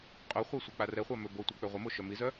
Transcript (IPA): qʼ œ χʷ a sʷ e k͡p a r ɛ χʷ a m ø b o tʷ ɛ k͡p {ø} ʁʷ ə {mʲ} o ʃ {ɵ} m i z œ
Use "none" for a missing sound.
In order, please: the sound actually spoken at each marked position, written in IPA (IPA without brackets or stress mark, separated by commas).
ø, m, œ